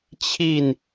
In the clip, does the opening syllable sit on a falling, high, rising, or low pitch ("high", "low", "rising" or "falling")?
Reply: falling